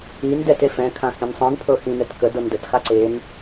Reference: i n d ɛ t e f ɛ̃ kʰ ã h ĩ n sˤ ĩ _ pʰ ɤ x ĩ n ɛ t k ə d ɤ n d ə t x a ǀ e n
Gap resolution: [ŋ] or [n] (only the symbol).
n